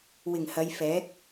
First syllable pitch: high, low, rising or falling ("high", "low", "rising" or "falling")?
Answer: low